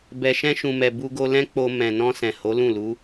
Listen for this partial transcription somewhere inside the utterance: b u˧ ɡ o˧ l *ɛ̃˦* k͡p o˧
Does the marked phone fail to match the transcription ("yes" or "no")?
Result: no